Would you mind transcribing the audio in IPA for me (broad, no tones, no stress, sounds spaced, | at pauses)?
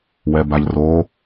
w ɛ b a ʎ r o